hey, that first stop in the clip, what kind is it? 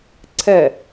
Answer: click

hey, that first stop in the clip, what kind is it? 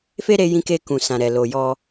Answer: plain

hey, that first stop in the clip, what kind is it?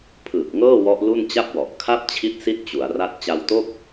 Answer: aspirated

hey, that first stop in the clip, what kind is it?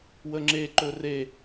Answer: click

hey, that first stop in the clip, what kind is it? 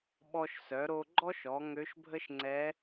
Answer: implosive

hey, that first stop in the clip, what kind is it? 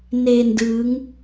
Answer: plain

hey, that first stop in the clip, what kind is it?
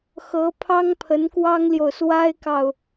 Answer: aspirated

